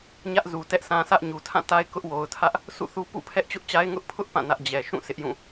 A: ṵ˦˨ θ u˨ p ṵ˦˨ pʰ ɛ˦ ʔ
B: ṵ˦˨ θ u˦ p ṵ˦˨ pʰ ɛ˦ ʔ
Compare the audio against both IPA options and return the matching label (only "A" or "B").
B